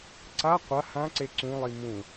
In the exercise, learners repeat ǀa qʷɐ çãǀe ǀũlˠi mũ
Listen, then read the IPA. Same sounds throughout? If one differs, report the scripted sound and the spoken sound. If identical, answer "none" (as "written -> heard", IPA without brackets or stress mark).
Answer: ç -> h